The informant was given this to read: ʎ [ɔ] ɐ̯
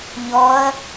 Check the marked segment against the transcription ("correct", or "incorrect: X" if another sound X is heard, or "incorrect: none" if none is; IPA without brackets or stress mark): correct